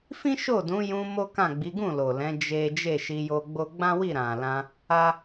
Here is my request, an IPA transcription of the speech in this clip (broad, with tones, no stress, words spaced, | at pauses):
fĩ˦ʃo˦˨ dũ˨˦jũ˧ mo˦kã˦˨ ɡ͡bi˨˦ɡũ˦˨ lo˨lɛ̃˨˦ d͡ʒe˦ d͡ʒe˦˨ʃi˧jo˧ɡ͡bo˦ ɡ͡bã˦wi˦˨ɾã˨lã˧ | a˦